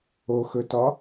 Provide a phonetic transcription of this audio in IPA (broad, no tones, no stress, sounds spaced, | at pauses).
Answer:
o x ɵ t ɒ